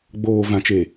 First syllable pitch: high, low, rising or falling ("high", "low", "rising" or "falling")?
low